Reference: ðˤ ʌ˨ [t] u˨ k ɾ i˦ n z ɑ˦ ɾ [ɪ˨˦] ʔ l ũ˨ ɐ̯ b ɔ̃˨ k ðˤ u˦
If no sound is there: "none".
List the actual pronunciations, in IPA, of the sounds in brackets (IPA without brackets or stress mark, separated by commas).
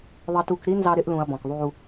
t, ɪ˦